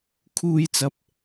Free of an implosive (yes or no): yes